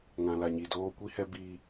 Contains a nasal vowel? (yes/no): yes